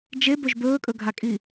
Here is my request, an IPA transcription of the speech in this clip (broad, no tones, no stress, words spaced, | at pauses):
d͡ʒebɵʒ bɵːkʼɵɡʱakʼi